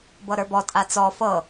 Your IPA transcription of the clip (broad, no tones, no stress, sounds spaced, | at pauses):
b ɤ ɾ ə˞ b ɔ tʼ a t͡s ɔ f ɤ